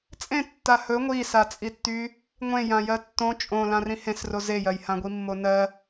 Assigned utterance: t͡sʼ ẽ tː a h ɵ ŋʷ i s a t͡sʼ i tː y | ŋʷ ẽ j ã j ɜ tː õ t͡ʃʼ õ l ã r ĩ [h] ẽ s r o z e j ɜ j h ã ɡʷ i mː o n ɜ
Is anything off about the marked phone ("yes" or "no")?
no